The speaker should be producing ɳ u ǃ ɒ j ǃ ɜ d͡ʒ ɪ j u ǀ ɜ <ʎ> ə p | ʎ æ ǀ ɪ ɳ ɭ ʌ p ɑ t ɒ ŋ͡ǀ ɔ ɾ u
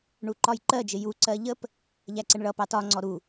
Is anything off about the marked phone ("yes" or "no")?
no